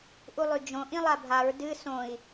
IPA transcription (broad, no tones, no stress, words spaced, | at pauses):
ʔulˠʉd͡ʒõ ʔĩlˠabʱaɹ dɨ sõi̯